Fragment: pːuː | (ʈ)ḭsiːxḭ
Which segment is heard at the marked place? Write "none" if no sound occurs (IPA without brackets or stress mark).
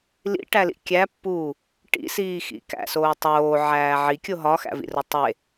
ʈ